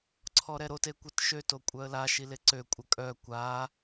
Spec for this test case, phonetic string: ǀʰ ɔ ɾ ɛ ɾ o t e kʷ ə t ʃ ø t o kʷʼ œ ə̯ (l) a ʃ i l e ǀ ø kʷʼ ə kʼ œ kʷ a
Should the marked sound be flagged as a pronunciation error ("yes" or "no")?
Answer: no